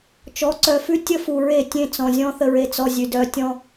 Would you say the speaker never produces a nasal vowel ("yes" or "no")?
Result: no